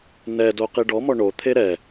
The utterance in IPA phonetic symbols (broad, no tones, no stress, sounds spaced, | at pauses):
n ɛ d o q i ɖ ɔ m ɔ ɳ o t̪ʰ e ɾ ɛ